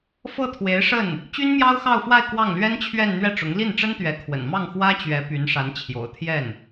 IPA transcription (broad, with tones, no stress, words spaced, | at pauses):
fɤ˥˩t̪ʰwe˧˥ɪ̯ ʂə˥˩n | t͡ɕy˥nmjɑ˥ʊ̯xɑ˥˧ʊ̯fwa˥˧ɪ̯ kwɑ˥˩ŋlɥɛ˥nt͡ɕʰɥɛ˥˧n n̪ɥɛ˥˩ʈ͡ʂʊ˧˥ŋ li˥˩nʈ͡ʂə˥nt̪ɥɛ˧˥kʰwə̰˨˩n mɑ˥˩ŋxwä˥t͡ɕɥɛ˧˥ py˧˥nʂa˧˥n t͡ɕʰjo̰˨˩ʊ̯t̪ʰjɛ˥˩n